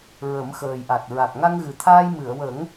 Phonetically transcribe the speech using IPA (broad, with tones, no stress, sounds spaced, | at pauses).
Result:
ɹ ə˨˩˦ m x əː˨˩ j ʔ a˨˩ t̚ ɹ a˨˩ k̚ ŋ a˧ ŋ ɣ ɨ˨˩ t̪ʰ aː˧ j m ɨ˨˩˨ ə̯ w ə˨˩˦ ŋ